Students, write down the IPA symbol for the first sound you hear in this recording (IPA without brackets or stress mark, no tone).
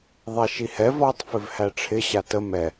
ðˤ